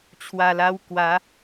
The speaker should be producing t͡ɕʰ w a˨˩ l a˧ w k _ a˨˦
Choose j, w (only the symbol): w